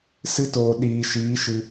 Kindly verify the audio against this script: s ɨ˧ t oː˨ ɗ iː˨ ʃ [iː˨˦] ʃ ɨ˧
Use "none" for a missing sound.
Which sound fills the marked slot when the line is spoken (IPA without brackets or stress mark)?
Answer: iː˨˦